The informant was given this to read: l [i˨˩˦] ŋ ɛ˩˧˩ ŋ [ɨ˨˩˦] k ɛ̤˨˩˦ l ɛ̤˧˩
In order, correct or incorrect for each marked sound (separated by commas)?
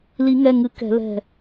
correct, correct